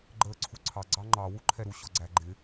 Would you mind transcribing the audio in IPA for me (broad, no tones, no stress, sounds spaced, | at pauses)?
ɡ͡ǃ əː ǀʰ u ǀʰ ɑ ɡ͡ǀ ɑ ŋ͡ǃ ɑ w u ǃʰ ɛ ɾ u ɕ ɔ ɡ͡ǀ æ ɡ͡ǃ ɪ